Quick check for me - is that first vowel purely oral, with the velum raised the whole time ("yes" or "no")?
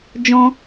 no